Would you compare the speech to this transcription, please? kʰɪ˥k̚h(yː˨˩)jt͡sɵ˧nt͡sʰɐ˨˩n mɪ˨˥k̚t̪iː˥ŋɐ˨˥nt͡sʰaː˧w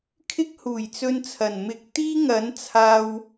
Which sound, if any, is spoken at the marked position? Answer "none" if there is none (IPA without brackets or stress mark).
uː˨˩